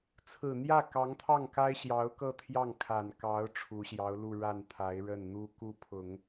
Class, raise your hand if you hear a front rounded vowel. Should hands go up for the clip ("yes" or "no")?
no